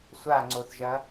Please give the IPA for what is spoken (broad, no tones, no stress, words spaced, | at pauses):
sʷaŋ͡ǀoθʒɐ